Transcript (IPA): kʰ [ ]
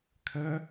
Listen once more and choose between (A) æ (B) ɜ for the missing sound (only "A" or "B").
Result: B